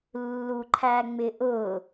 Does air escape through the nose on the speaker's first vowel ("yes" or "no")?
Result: no